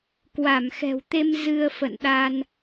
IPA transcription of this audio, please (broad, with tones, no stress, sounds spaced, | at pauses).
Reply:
k w a˧˩ m x ɛ̤˨˩ w t̪ e˧ m z ɨ˧ ə̯ f ə̰˧˨ n ɗ a˧ n